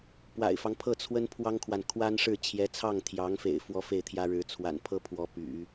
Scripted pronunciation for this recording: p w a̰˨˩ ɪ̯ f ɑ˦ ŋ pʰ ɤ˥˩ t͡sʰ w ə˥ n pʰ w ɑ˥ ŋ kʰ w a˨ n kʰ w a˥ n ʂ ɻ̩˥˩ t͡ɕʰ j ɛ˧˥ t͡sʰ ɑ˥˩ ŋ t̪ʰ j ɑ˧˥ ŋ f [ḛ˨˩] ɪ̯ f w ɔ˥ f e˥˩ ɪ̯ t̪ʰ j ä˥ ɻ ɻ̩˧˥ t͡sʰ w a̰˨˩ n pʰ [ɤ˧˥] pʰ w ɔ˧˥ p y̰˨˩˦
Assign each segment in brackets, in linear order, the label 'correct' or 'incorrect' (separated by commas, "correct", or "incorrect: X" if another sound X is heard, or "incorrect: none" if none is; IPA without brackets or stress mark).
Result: correct, incorrect: ɤ˥